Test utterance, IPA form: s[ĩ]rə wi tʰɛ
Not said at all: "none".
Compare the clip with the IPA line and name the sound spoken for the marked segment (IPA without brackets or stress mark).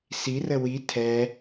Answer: i